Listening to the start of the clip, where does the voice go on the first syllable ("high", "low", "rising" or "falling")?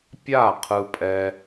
falling